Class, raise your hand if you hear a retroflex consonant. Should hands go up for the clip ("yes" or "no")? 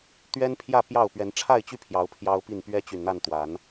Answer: yes